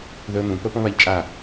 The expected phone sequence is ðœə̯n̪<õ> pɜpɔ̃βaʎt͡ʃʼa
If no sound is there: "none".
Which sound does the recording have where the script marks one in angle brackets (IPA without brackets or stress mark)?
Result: ũ